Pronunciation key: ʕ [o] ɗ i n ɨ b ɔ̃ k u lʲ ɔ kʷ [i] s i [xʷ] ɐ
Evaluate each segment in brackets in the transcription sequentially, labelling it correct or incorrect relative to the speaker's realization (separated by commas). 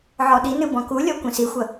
incorrect, incorrect, correct